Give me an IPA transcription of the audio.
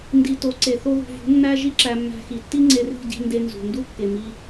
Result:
n d i˧ t o˨˦ ǀ e˨ θ o˧ ð ṳ˨ v ṳ˨˦ nː æ˦ ʒ i˦ ǁ æ˧ mː æ̤˧ x i˨ tː i˦ ŋ͡ǀ e˧ r i̤˦˨ ɟ i̤˧ n d e˧ n z ṳ˨ n d u˦ kː e˨ m i˧

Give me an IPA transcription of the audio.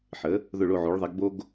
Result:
ħ ə˩˧ | ð ʊ˧˩ ɭ o˧˩ ʕ o˩˧ ɭ ðˤ ɛ˩˧ ɡ b o˧ ɡ

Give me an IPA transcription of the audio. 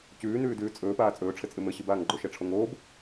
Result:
c ʉː n ʉː d ʉː t͡sʼ ɵː p aː t͡sʼ ɵː ʈ͡ʂʰ ɘ t͡sʼ ɨ m ɘ ɕ ɨ b aː ŋ ɡ͡ǃ o ʃ ɛ ʈ͡ʂʰ o ŋ oː b

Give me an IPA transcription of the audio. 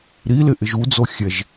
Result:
ɾ i l ɪ ʔ ɪ ʒ u d͡z o xʲ ɛ ʒ

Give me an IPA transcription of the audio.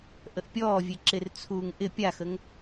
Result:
ʔ ə ʔ pʲ ɔː vʲ e ǁ ɪ r t͡sʰ uː ŋ ʔ ɪ pʲ a x ə ŋ

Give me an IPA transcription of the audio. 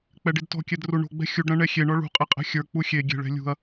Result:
k͡p ɛ ɖ i d t ɔ̤ kʲ ɛ d r u ɳ o̤ ɡ͡b ɛ̤ xʲ u ɖ ɾ ɐ̃ ɳ ɛ xʲ e ɳ ɔ ɭ ṳ qʼ e qʼ ɛ̤ xʲ ə˞ k͡p u xʲ e ɡʲ e̤ ɭ ɛ̤ lʲ ṳ ɐ̯

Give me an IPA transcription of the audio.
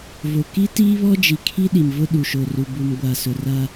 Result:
v o˨ k i˦ t iː˦ β ɔ˦ d͡ʒ i˨ kʰ i˦ ɗ i˨ m v ʊ˦ ɗ u˨ ʃ o˨ r u˨ b u˨ m ɡʷ a˨ s ʊ˨ r a˦

